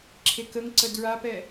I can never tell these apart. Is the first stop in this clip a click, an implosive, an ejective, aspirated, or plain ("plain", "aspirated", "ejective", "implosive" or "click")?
click